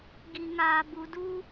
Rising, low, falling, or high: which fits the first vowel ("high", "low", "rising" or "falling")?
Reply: low